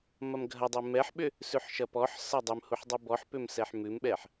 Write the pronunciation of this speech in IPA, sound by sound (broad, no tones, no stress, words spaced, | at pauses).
mɐmɡʱɐdˤu mɛħɓʏ | sʉħʃɐpɔħsɐ dˤʏmhuħ dˤubɔħpʏm sɛħmʉmɓɛħ